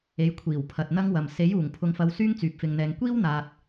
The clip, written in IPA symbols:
e˨˥ j kʷʰ iː˨˩ w pʰ ɐ˨ t̚ n̪ ɐ˥ ŋ w ɐ˨ m s e˨˥ j uː˨˩ ŋ pʰ ʊ˨ ŋ f ɐ˨˧ w s yː˥ ŋ t͡s yː˨ p̚ f ɪ˨ ŋ n̪ ɛː˨˧ ŋ kʷ iː˥ w n̪ aː˨ t̚

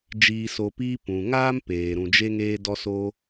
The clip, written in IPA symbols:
d͡ʒ iː˨ s o˨ p iː˧ p ũ˨ ŋ aː˦ m p eː˨ ɾ ũ˨ d͡ʒ e˧ ŋ eː˧ d ɔ˧ s o˧

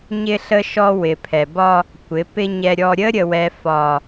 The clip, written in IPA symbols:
ɲ ɪ˦ ɬ ə˦ ʃ ɔ˦ w ɪ˨ pʰ ɛ˨ b ɒ˦ | kʷ ɪ˨˦ p ɪ˦ ɲ ɛ˦ ɾʲ ɔ˦ ɾʲ ə˦ ɾʲ ə˨ w ɛ˨ f ɒ˨

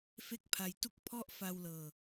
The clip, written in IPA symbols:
f e˥˩ k̚ pʰ a˧ j t u˥˩ k̚ pʰ ɔ˥˩ ʔ f a˧ w l ɤː˧

